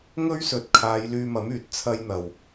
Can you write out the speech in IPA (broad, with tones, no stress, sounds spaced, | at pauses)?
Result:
ŋ ɵ˥ ɥ s ɵ˨˥ t̚ kʰ aː˨˧ j l yː˧ m ɐ˨˥ m yː˨˥ t̚ t͡sʰ ɐ˧ j n̪ ɐ˨˩ w